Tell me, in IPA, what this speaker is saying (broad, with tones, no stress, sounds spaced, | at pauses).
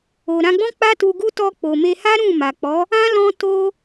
o˨ ɾ ã˧ ɡ͡b ɔ̃˦ k͡p a˦ t u˧ ɡ u˦ t ɔ˧ k͡p o˨ m e˧ h a˦ ɾ ũ˦˨ m a˨ k͡p ɔ˨˦ | ã˦ l ɔ̃˧ t o˧